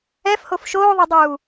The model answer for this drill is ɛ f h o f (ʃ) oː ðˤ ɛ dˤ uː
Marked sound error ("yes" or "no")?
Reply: no